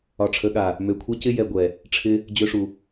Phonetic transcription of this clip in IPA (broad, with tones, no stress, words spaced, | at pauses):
ɒ˨ʈ͡ʂʰə˨˦ɠa˨ | mø˨kʷʰɛ˦cɪ˦ jɛ˨ ɡʷɛ˨ | ʈ͡ʂʰɪ˧ | d͡ʑø˧ʂu˨